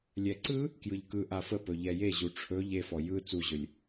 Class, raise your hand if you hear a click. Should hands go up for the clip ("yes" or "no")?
yes